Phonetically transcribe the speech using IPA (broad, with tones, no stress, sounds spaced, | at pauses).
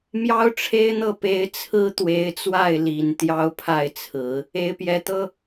m j ɑ˥ ʊ̯ ʈ͡ʂʰ e˥ ɪ̯ n̪ ɤ˥˩ p e˧˥ ɪ̯ t͡sʰ ɹ̩˥ t̪ w e˧˥ ɪ̯ t͡s w a˥˩ ɪ̯ l i˨˩ n t̪ j ɑ˥ ʊ̯ pʰ a˥˩ ɪ̯ t͡sʰ ɹ̩˨˩˦ | e˧˥ ɪ̯ p j ɛ˧˥ t̪ ɤ˥